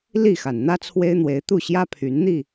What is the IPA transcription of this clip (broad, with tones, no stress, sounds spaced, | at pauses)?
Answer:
l i˥˨ x a˩ n n̪ ä˦ t͡sʰ w e˦ ɪ̯ n̪ w e˨˦ ɪ̯ t̪ u˥˨ ɕ j ä˦ pʰ y˨˦ n n̪ i˥˨